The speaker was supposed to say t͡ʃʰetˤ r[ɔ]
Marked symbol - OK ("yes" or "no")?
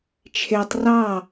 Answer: no